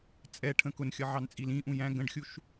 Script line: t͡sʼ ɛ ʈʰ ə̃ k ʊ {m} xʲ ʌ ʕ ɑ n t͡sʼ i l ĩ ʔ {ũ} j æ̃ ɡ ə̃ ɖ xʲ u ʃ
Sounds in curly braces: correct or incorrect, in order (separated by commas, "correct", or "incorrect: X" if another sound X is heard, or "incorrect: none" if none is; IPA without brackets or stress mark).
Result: incorrect: n, correct